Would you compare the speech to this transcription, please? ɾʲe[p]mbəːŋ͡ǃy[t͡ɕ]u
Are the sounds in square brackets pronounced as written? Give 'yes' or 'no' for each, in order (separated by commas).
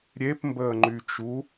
yes, no